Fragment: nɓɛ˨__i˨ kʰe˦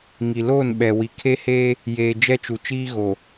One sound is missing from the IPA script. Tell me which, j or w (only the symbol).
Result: w